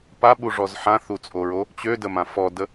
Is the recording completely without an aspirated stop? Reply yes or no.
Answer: yes